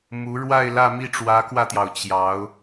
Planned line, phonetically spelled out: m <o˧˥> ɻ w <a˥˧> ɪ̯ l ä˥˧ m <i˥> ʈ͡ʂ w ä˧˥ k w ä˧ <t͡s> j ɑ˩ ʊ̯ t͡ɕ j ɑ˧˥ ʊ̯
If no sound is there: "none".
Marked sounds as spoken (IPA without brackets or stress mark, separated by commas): u˧˥, a˥˧, i˥˩, t̪